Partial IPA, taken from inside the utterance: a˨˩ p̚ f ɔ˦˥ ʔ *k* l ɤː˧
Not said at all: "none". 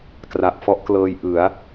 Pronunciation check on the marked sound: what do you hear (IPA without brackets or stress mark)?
k